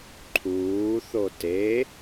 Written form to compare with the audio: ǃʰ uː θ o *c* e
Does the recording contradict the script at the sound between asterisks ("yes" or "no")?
yes